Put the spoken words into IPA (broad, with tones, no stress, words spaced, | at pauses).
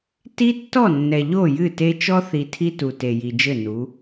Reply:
ti˦tːɔ˦˨ nːɛ˨ʎo˦˨jɨ˦˨te˦ t͡ʃɔ˦θi˨ tʰi˦tu˨ te˨ji˨d͡ʒɘ˦˨ nu˨˦